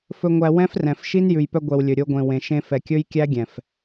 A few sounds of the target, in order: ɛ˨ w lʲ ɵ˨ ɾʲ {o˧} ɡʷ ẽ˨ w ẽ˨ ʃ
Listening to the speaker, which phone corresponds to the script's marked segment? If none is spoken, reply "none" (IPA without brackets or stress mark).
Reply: o˧